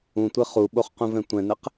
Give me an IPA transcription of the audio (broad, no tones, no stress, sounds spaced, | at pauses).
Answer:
ũ tʷ e χ u ɓ o χ q ũ v ɛ̃ tʷ ɛ̃ n ɛ q